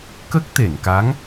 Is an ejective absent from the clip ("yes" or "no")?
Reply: yes